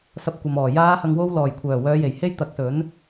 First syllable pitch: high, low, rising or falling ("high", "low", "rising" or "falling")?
rising